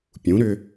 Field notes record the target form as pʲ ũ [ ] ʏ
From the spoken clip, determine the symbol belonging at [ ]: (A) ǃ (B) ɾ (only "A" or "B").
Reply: B